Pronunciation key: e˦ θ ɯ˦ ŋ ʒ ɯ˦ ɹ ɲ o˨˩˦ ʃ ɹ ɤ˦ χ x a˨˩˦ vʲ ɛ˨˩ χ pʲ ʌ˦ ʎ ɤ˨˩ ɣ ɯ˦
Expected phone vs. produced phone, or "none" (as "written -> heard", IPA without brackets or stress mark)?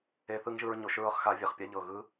ʌ˦ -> a˦